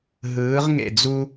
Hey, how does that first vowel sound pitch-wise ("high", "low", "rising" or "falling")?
rising